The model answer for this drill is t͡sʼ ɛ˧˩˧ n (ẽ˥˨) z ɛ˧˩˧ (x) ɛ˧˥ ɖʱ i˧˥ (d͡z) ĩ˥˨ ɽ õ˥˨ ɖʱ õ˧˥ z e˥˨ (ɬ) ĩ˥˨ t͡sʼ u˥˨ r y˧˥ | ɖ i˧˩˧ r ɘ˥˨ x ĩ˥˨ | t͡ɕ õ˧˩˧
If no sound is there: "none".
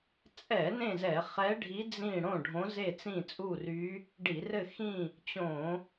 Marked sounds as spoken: ẽ˥˨, χ, d͡z, t͡s

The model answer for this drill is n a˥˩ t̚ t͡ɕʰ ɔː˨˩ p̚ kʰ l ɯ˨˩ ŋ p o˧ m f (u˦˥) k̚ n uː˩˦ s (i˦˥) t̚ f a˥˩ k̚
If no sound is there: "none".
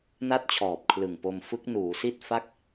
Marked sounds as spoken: ɯ˦˥, i˥˩

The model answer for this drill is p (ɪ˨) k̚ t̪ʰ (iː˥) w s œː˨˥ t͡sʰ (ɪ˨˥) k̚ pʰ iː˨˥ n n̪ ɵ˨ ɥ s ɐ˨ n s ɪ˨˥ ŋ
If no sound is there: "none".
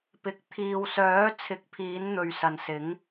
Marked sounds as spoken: ɪ˨, iː˨, ɪ˨˥

